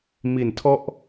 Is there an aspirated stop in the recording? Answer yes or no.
yes